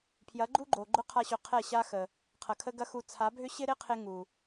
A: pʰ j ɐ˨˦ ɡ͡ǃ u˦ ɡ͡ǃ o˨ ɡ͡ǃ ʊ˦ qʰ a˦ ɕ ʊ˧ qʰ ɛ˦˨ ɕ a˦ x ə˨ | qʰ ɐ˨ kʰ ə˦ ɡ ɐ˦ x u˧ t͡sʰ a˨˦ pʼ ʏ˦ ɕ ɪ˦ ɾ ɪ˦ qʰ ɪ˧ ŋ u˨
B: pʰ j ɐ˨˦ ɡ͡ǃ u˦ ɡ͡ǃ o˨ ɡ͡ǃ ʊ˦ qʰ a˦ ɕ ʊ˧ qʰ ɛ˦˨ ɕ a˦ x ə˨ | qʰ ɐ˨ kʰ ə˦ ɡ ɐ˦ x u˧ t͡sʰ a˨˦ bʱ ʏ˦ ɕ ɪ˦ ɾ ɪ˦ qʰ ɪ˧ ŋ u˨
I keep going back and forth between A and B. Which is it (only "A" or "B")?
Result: B